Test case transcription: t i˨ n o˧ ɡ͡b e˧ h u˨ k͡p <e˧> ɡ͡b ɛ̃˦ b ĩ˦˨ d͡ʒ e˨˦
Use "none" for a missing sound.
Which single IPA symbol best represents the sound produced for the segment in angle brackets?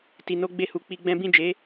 i˧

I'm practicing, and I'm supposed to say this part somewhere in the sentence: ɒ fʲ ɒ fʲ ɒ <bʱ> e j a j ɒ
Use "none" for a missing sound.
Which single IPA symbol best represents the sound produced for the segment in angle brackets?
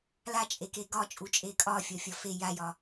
f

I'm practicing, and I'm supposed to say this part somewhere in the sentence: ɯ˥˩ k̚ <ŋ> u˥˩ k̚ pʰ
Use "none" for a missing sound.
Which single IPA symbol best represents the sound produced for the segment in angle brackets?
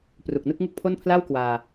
ŋ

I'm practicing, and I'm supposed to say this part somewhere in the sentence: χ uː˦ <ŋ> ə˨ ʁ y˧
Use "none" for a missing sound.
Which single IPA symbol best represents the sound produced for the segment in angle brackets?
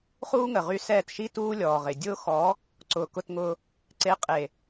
ŋ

